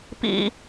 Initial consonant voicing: voiceless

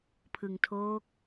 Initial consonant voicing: voiceless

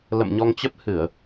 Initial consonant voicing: voiced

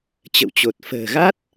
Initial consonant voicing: voiceless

